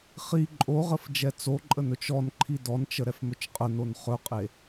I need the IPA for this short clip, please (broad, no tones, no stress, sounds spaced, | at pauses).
χ i ǃʼ o ʁ ə f d͡ʒ ɛ t͡s o ǃʼ ə n ɵ t͡ʃ ɔ n ǃʰ i d ɔ n t͡ʃ ə ɾ ɛ f m ɵ t͡ʃ qʼ ə n o n χ ɵ qʼ e